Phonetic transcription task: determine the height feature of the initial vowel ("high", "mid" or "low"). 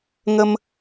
mid